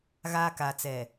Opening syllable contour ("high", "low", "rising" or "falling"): high